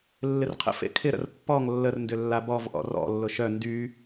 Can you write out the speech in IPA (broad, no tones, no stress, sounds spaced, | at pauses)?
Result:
lː ɪ r qʰ ə̰ f ḛ kʰ ɪ ɾ ə̰ r pː ɔ ŋ lː ə r n d ʏ lː a b ɔ v ʔ ɔ̰ r ɔ̰ lː ʊ ʃ œ n d y